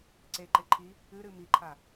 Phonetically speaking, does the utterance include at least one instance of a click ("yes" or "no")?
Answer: yes